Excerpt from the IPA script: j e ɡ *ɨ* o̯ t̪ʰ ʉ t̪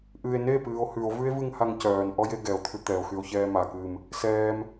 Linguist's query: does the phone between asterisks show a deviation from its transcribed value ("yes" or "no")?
yes